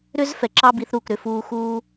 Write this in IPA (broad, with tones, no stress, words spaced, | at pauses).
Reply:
ɾʏ˥z fɛ˩ǁɑ˥bi˩˥θɾuː˩k ɾʏ˥˩fuː˧xuː˥